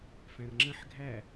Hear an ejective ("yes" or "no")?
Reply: no